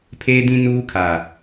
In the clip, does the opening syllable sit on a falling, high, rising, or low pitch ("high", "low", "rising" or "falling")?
high